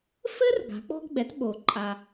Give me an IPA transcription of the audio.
f ɘ˥ r ɡ a̤˩˥ k͡p ɔ̤˥ ɡ ɡ͡b ɛ˩˥ t ɓ o˩ ǃʼ a˩

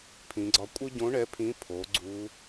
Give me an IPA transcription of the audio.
pʰ ĩ˩˧ ɡ͡ǀ ɒ˧ kʷʼ ɯ˥ ɟ õ˧˥ ɳ ɛ˧˥ pʰ ĩ˧˥ pʰ o˩˧ ɡ͡ǀ u˧˥

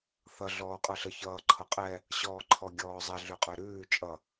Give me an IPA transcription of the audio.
θ ʌ ɮ ɔː qʼ ʌ ɬ ə ç ʌː ǃʰ ʌ qʼ ɛ | ɕ ɔː ǃʰ ɔ ɡʲ ɔː zˤ ɛ ɮ ʉ qʼ ə˞ ɾ ʉː t͡ʃʼ ʌ

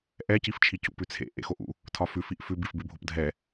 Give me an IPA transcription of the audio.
ʔ ɛ c i f t͡ʃʰ i c ṵ p ʉ t͡sʰ ḛ ʔ ḛ x o ʔ ṵ | tʰ ɒ f ʉ f i ʔ f ʉ b i f b ʉ bʱ o p dʱ ɛ

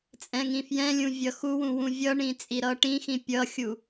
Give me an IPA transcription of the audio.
t͡sʼ ɛ̃ ŋ ĩ f j ɛ̃ lʲ ũ vʲ ʌ x u w ũ w ũ vʲ ʌ ɳ ĩ t͡sʼ i ɾ ʌ ʈ ĩ x ĩ pʲ ʌ xʲ u

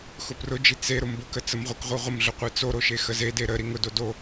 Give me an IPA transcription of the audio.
x ʊ p r ʊ d͡ʒ i t͡s e ɾ ʊ m b ʊ k ə t͡s ə m ʁʷ ə k ʁʷ i ʁʷ ə m ɮ ʊ qʷ i t͡s o ɾ o ʃ e x ə z e d e ɾ ə ɾ i ŋ ʊ d o d o

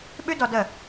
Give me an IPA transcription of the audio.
ɓ ʉ˥ d ɔ˧ d ə˧˩

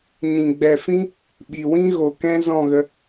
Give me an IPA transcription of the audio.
ɲ ĩ˨ ɡ͡b ɛ˨ f ĩ˦ | ɓ i˨ w ĩ˦ ɣ o˨ k ɛ̃˦ z ɔ̃˦˨ ɣ ə˧

